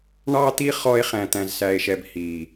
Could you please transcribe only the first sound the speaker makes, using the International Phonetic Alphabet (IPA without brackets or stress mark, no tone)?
ɳ